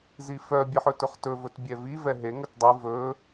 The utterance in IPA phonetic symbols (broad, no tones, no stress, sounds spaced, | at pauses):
z i f œ bʲ ɨ ħ ɵ t ɵ χ t ɵ v ɵ t bʲ ɛ v i v ɛ ɦ e ŋ ɵ t dˤ i v ɵ